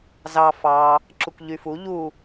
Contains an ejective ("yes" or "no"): no